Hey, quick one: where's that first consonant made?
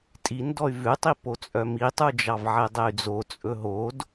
tongue tip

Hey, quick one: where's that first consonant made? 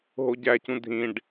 throat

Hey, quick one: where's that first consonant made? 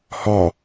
throat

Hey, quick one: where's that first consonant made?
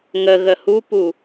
velum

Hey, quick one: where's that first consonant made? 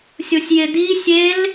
tongue tip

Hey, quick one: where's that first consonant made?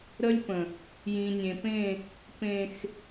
tongue tip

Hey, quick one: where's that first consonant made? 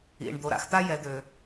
retroflex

